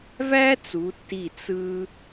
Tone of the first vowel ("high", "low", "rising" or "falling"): high